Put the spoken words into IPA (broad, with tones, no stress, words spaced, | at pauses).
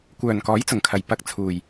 kʷœː˨nkɔː˨˥jt͡sʊ˨˩ŋkʰɐ˨˩j pɐ˧k̚t͡sʰuː˨j